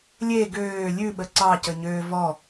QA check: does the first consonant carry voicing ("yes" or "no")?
yes